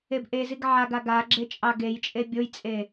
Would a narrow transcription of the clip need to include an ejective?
yes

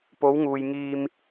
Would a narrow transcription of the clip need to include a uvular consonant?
no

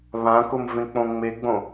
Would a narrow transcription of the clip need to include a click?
no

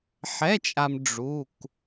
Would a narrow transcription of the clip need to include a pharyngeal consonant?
yes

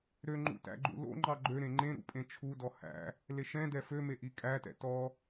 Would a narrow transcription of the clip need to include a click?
yes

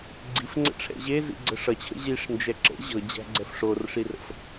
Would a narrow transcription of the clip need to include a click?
yes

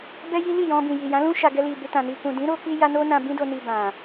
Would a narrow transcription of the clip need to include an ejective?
no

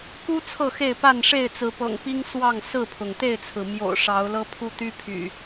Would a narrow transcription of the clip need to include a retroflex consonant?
yes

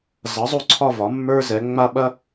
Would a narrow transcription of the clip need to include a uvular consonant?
no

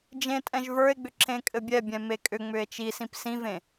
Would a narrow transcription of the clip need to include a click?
yes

